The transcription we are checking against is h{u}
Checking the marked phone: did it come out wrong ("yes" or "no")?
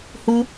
no